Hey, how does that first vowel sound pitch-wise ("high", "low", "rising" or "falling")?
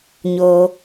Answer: low